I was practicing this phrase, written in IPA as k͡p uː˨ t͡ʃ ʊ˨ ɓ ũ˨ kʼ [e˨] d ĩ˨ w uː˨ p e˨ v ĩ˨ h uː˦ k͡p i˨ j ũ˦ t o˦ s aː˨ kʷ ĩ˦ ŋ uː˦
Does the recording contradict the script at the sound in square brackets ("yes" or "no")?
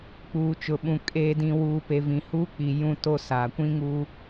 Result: yes